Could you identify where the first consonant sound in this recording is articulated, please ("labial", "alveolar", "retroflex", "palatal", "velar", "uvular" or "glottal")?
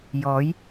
palatal